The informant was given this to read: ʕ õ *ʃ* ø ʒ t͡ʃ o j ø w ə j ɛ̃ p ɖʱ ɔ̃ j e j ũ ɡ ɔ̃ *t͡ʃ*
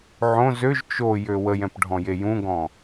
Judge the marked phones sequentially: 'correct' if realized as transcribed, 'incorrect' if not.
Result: incorrect: z, incorrect: none

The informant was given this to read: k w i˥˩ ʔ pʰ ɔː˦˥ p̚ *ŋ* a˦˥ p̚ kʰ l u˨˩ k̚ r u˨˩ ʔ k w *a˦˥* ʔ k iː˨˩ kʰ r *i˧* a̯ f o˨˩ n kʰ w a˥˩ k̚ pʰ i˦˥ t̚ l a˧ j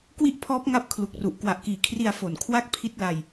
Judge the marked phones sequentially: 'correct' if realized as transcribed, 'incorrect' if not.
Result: correct, incorrect: a˨˩, correct

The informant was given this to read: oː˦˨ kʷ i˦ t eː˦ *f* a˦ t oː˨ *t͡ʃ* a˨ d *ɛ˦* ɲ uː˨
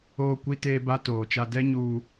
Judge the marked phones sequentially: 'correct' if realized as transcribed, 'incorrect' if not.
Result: incorrect: b, correct, correct

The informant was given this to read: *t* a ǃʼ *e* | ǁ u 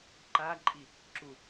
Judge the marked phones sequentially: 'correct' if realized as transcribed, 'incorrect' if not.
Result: incorrect: ǃ, incorrect: i

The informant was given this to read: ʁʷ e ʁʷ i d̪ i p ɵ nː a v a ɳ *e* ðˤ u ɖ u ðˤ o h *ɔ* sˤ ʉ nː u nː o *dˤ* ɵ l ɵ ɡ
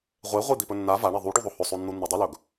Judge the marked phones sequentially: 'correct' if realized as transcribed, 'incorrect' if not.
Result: correct, incorrect: ɵ, correct

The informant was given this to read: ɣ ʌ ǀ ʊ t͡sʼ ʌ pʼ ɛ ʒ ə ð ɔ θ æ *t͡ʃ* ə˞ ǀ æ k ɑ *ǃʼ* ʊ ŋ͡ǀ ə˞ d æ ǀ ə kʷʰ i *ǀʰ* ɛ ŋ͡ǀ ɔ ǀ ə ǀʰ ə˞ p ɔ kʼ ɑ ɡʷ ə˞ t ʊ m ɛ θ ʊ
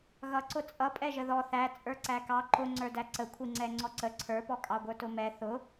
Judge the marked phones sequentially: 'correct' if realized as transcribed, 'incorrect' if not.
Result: incorrect: t͡sʼ, incorrect: ǃ, incorrect: ŋ͡ǀ

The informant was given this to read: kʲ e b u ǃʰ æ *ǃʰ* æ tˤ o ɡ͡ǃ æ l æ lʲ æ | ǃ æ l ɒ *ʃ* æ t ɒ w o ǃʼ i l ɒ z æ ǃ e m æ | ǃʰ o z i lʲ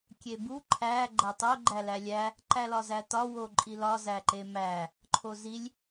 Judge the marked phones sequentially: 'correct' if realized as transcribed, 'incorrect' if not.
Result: incorrect: ɡ͡ǃ, incorrect: z

